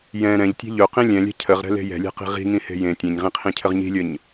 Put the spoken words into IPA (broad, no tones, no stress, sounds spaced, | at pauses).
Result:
j ɛ̃ ɾ ɛ̃ ʎ tʲ ɛ̤ ʎ ɵ q ĩ lʲ ɛ̃ lʲ ɛ̤ cʰ ə ʁ ɾ ɛ̤ l e̤ j ɛ̤ lʲ ɛ̤ q i̤ ʁ i̤ ŋ ĩ h e̤ j ẽ tʲ ẽ ɲ ʁ ĩ qʰ ĩ cʰ ə ʁ ɲ i̤ lʲ ə ɲ